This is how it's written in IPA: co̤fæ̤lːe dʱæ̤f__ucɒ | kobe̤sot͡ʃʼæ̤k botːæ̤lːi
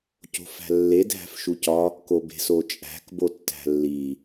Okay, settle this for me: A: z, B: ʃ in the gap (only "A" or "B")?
B